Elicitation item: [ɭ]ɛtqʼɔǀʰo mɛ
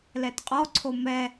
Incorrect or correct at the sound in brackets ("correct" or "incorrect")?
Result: incorrect